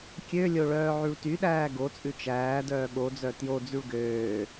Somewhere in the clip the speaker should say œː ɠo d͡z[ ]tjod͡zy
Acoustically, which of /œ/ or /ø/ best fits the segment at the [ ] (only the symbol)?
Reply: œ